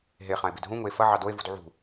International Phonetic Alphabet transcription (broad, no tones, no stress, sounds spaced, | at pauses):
ɦ e χ ã e̯ b ɪ d ɦ ũ ŋ ʊ e̯ f ɐ ʕ ɑ d o e̯ v ṳ d ʕ ṳ